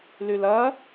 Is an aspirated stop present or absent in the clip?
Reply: absent